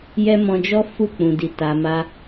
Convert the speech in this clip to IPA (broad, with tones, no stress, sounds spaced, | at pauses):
j ɛ˦ m ɔ̃˧ d͡ʒ ɔ˦ f u˦˨ k͡p ũ˨ d i˨ t a˨ m a˧